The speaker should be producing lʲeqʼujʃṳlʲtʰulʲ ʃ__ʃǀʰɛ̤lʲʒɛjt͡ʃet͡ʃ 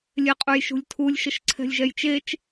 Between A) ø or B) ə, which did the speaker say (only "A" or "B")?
B